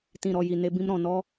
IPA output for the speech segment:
t ĩ˨ ɾ ɔ˨ j i˨ n e˧ b ĩ˧ m ɾ ɔ̃˨ n ɔ˦

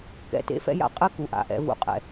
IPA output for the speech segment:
k ɛ̰˨ t ḛ˦ f ɛ̰˦ j a̰˦ qʼ ɘ˦ k u˨ ʔ a̰˨ ʔ ɛ̰˨˦ v ṵ˨ qʼ ɛ̰˨

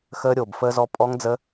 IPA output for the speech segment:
x əː˦˥ ɾʲ oː˧˩ b f əː˦˥ z ɔ˦˥ pʼ ɔ˦˥ ŋ d͡z ə˦˥

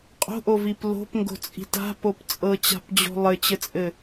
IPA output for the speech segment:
qʼ o̤ ʔ o v i p l o̤ p ŋ ɡ o̤ t͡sʼ i̤ t a̤ p o p t͡sʼ ɤ t͡ɕ a̤ p d͡ʑ o̤ lˠ ɘ t͡ɕ ɘ t͡sʼ ɘ

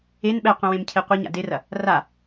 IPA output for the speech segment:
e n ɓ ɛ qʷ ɛ̃ w ẽ m cʰ e qʷ e ɲ a̰ d e r ɐ | r a

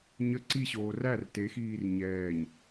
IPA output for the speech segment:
ɲ ə ǀ i ɕ oː r æ r t e x iː r ɲ ɛː ɲ

